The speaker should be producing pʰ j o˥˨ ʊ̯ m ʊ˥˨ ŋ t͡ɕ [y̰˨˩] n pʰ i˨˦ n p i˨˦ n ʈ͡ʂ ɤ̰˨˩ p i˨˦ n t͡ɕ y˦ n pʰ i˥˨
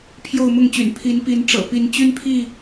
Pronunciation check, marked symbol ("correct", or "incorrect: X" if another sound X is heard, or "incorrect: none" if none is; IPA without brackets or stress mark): correct